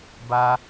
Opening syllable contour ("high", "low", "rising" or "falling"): high